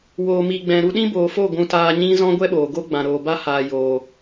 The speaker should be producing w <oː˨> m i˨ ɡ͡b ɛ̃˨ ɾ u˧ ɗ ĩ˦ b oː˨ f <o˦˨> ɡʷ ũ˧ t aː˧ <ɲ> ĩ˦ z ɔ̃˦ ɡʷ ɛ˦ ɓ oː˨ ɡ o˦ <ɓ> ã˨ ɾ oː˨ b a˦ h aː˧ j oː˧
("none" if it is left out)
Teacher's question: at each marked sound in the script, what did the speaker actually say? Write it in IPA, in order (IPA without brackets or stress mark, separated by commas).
oː˨, o˦˨, ɲ, ɡ͡b